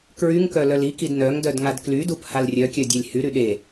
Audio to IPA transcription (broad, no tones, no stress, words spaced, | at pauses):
kɹyŋ kœlœlikid nœŋdœd ŋadklydup halrʲœkʲœ dʲalʲhyɾy ɗe